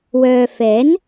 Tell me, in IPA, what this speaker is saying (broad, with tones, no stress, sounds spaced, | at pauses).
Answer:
w œː˨ f ɛː˨˥ n